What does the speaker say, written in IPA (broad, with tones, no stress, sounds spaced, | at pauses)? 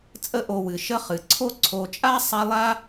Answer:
t͡sʼ ə˦ ʔ o˨ w ɨ˩ ʃ ə˦ χ ɨ˩ ǀʰ o˥ ǀʰ o˨ t͡ʃʼ a˥ sˤ a˦ lˠ a˥